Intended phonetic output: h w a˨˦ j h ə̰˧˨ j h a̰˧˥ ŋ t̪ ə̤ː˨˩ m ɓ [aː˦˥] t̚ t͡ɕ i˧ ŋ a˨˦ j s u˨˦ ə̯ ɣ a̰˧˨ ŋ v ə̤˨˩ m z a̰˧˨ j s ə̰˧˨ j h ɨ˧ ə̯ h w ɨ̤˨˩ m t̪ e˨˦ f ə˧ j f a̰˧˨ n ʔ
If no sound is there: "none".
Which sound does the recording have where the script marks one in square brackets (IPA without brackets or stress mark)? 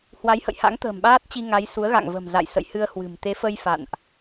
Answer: aː˦˥